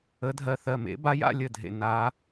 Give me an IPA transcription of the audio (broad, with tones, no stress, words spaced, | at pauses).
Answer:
ə˨˥dʱɜ˧˩ θɜ˧˩mḛ˨˥ba˨˥j a̰˨˥lʲə˧˩dʱḛ˧˩ na˨˥